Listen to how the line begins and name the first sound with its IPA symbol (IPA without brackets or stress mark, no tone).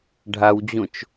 ɖʱ